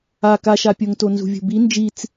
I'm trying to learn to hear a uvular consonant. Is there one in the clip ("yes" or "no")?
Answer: no